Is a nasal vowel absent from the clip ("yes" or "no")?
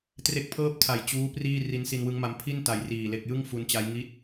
yes